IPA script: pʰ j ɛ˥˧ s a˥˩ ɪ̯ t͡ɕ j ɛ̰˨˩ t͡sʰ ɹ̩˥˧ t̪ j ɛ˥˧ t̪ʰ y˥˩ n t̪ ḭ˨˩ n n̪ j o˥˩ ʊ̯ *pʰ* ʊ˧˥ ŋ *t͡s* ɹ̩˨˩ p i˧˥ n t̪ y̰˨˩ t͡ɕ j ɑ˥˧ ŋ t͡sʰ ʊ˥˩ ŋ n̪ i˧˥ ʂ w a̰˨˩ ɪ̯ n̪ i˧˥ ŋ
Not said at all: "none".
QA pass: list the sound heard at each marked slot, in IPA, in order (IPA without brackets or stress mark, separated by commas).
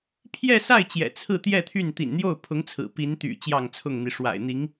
pʰ, t͡sʰ